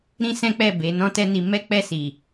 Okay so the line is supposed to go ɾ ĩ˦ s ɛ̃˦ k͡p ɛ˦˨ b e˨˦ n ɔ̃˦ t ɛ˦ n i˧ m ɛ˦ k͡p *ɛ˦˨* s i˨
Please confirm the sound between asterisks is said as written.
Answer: yes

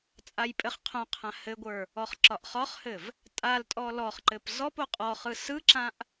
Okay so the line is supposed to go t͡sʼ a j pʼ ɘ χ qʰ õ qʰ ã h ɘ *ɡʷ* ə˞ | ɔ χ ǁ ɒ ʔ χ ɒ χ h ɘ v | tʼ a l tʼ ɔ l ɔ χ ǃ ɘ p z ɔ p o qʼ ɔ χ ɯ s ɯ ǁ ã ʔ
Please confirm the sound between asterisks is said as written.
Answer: yes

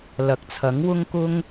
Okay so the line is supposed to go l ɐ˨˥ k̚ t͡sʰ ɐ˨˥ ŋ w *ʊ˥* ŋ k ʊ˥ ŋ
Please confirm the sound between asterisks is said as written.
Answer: yes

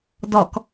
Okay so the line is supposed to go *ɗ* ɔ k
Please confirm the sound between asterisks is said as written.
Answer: no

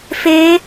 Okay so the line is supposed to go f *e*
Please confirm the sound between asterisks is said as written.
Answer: yes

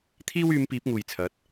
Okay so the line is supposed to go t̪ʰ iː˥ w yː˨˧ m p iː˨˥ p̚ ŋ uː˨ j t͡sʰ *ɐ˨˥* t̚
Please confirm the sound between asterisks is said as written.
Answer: yes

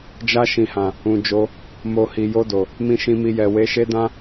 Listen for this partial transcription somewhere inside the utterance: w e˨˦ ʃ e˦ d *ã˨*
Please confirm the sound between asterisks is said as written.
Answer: no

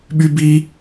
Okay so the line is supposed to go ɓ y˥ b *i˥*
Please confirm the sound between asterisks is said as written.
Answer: yes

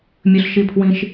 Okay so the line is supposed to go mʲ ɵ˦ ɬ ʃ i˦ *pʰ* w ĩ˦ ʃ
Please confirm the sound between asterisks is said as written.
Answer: yes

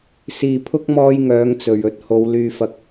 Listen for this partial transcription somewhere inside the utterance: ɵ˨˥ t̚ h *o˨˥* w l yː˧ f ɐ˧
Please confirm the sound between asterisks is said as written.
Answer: no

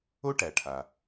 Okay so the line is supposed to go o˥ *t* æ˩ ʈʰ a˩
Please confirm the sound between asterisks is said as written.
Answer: no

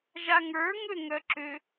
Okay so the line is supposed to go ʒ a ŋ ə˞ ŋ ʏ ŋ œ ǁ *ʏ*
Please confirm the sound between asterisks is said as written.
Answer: yes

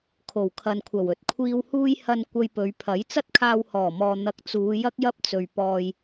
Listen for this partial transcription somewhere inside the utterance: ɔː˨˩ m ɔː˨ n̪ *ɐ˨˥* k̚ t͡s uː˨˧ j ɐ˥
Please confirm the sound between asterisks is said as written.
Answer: no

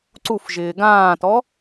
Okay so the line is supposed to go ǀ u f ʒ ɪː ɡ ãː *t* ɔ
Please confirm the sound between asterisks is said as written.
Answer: yes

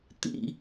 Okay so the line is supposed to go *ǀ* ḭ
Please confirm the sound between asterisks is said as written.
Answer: no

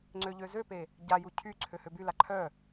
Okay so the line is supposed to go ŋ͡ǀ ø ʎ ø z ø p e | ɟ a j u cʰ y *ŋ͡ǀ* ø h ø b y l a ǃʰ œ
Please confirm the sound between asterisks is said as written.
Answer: no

